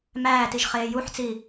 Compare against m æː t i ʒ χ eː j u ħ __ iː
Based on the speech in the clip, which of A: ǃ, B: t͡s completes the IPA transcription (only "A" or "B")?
B